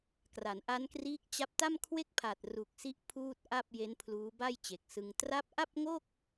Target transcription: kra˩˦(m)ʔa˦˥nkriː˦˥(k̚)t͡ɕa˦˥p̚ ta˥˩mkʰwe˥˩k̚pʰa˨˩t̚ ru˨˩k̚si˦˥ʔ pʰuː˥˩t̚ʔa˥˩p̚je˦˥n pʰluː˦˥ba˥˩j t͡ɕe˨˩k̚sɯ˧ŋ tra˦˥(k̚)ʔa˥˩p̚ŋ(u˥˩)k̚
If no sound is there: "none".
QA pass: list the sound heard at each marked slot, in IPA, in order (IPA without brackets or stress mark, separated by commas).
n, k̚, p̚, o˥˩